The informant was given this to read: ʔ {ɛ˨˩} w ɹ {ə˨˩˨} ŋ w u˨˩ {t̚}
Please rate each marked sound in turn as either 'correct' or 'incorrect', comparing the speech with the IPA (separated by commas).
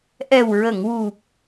correct, correct, incorrect